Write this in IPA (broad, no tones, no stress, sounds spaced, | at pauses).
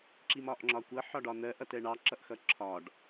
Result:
ǁ i m ɒ ʔ ŋ͡ǁ ɒ kʷ ʌ ħ ɒ ɖ ɒ n̪ ɜ ʔ ʌ t ɛ ɳ ɑ ǁ ʌ ʔ x ʌ ǁʰ ɒ ɖ